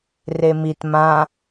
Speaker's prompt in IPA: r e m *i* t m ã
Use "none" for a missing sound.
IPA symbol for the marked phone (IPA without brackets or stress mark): i